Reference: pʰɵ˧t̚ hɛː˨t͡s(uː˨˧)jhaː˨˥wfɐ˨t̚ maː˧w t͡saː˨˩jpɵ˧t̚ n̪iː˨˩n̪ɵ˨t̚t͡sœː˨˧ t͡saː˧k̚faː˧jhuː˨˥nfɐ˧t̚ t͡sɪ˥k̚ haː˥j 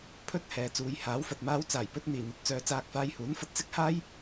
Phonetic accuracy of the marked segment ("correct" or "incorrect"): correct